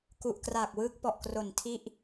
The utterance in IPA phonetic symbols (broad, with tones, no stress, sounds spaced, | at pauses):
k u˨˩ ʔ k r a˨˩ k̚ w ɯː˦˥ k̚ p ɔ˨˩ ʔ k r o˨˩ n tʰ i˥˩ ʔ